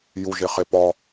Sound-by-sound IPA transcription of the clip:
j u ʒ e χ e p ɒ

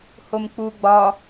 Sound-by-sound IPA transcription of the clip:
h o m k͡p u ɡ͡b ɒ

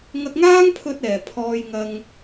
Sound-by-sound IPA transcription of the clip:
ŋ ɐ˧ k̚ ŋ aː˥ ŋ pʰ ɵ˧ t̚ ɛː˨ pʰ ɔː˧ j ŋ ɐ˧ ŋ

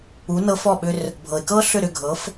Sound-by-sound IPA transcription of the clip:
u˩˥ n ɤ˧ f ɔ˥˩ ɓ ʏ˧ r | bʱ ɤ˩ ɪ̯ k ɤ˥ ɬ ʏ˥˩ ɾ ʏ˥˩ ɡʱ ɤ˩˥ f

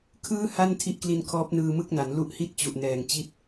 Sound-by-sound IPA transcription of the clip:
kʰ ɯː˥˩ h a˥˩ n tʰ i˦˥ ʔ k l i˧ n kʰ ɔː˦˥ p̚ n ɯː˧ m ɯ˥˩ k̚ n a˩˦ n l u˦˥ ʔ h i˥˩ t̚ t͡ɕ u˨˩ ʔ n ɛː˨˩ ŋ t͡ɕ i˦˥ t̚

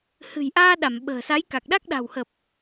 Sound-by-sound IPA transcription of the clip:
h ɨ̤˨˩ j ʔ aː˧ ɗ a˧˩ m ɓ ə̤ː˨˩ s a˨˦ j k a˨˩ k̚ ɗ a˦˥ k̚ ɗ a̤˨˩ w h ə˨˩ p̚

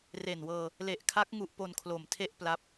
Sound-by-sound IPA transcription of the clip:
r e˨˩ n w ɤː˧ | l e˨˩ ʔ kʰ a˦˥ k̚ ŋ u˦˥ ʔ p o˧ n kʰ l o˨˩ m tʰ e˥˩ ʔ p l a˦˥ p̚

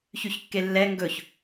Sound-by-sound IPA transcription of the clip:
ç y ç kː e lː ɛ ŋ ɡ ɵ ç

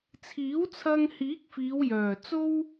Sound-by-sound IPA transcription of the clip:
t͡sʰ iː˨˥ w t͡sʰ ɐ˧ ŋ h iː˨˥ k̚ f iː˨˧ w j œː˨˩ t͡s o˥ w

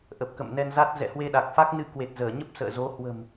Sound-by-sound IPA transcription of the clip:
ʔ ə˨˩ p̚ k ə̰˧˨ m n ɛ˧ n z a˦˥ t̚ z ɛ̰˧˨ h w e˧ ɗ a˨˩ k̚ f a˦˥ k̚ n ɨ˧ k w e˨˩ t̚ z əː˧˩ ɲ ə˦˥ p̚ s ə̰ː˧˨ z o˨˦ h w ə̤˨˩ m

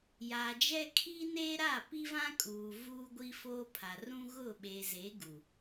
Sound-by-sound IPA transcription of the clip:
j aː˨ d͡ʒ ɛ˦ kʰ iː˦ n eː˦ ɾ a˦˨ p i˦ v ã˦ kʼ uː˨ v uː˦ ɡʷ i˦ f oː˦ pʰ a˨ r ũ˦ ɣ ʊ˦˨ ɓ e˨ z e˨˦ ɡ u˨

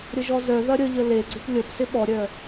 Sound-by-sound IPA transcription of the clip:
ɾʲ ə ʒ ɔ z œ ð ɐ ɾʲ ə ʎ ə l e ɡ͡ǀ ɪ p lʲ ə p s ɪ ɓ ɔ ɾʲ œ

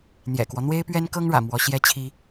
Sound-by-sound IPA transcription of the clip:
n̪ j ɛ̰˨˩ k w ɔ˦ n̪ w e˥ ɪ̯ p ɥ ɛ˥ n k ɤ˥ ŋ ɻ ä̰˨˩ m w ɔ˧˥ ɕ j ɛ˥ t͡ɕʰ i˥

